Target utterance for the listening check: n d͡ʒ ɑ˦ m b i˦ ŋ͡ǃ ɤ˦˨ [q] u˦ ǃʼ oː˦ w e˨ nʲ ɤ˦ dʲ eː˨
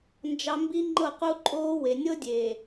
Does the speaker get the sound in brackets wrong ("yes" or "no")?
no